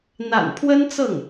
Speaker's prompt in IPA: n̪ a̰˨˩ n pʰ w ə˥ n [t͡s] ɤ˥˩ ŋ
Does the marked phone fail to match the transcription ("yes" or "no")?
no